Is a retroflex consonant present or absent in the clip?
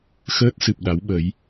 absent